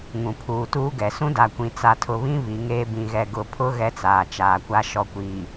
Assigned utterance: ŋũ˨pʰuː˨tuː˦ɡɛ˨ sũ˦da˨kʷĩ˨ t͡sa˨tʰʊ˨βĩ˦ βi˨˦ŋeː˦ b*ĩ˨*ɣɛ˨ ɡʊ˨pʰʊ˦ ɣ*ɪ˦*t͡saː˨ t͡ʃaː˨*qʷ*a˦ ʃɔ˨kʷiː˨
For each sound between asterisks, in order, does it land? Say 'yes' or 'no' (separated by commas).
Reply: yes, no, no